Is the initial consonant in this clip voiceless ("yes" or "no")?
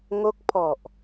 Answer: no